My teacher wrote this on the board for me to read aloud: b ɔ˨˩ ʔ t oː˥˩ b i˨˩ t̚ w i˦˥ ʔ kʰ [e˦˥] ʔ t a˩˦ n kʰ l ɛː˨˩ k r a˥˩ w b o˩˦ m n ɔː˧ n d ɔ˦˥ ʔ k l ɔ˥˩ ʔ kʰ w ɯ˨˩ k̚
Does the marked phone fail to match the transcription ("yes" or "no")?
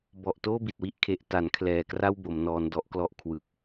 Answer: no